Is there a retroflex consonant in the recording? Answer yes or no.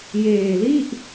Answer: no